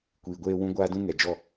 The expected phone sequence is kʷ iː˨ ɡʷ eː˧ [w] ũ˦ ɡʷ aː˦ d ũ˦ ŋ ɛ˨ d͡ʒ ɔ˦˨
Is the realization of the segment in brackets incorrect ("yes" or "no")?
no